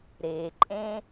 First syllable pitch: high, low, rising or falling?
low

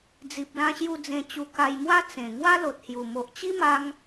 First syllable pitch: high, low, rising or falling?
low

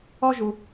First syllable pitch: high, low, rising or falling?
high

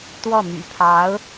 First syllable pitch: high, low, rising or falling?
falling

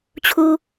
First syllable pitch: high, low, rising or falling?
low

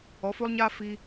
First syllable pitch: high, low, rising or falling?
rising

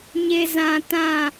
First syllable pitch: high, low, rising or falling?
high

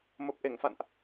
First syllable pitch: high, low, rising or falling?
low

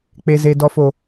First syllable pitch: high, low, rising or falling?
low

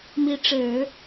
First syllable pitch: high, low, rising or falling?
rising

